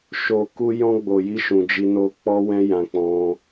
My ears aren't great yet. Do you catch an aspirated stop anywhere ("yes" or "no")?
no